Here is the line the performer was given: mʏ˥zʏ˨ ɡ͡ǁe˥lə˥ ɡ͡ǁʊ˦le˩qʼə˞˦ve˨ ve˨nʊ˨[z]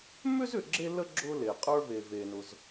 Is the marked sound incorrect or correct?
correct